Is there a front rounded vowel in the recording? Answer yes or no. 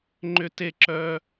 yes